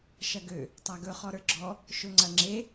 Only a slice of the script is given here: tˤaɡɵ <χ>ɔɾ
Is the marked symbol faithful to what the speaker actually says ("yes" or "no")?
yes